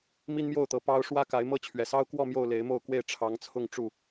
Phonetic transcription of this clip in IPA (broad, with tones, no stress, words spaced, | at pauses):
mi˦nmjo˥˨ʊ̯t̪ɤ˨˦ pɑ˦ʊ̯ ʂwä˦ka˨˦ɪ̯mɤ˦ t͡ɕʰɥɛ˨˩sɑ˦ʊ̯kwɔ˥˨ mjo˥˨ʊ̯le˨˦ɪ̯mo˥˨ʊ̯kwe˥˨ɪ̯ ʈ͡ʂʰɑ˨˦ŋt͡sʰʊ˥˨ŋ ʈ͡ʂu˥˨